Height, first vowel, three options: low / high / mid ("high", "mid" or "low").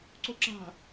mid